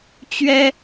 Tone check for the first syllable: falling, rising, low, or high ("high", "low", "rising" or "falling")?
high